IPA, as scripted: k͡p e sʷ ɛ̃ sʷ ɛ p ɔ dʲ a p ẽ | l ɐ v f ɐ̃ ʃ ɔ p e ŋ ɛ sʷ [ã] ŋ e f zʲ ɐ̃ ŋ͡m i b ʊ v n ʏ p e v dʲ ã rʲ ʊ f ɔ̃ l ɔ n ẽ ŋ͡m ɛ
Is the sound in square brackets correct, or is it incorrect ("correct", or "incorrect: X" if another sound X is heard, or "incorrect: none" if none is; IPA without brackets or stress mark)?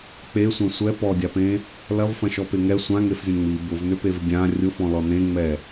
correct